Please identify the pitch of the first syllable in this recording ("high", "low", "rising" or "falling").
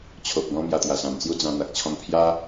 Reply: low